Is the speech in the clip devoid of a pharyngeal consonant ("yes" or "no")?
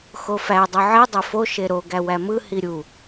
no